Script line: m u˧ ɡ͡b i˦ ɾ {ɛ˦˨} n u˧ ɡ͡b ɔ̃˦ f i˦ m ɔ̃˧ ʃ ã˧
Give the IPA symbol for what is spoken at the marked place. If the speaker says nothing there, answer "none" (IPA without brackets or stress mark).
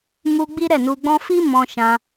ɛ˦˨